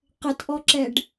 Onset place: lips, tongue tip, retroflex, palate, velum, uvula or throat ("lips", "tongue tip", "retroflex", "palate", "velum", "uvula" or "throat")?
uvula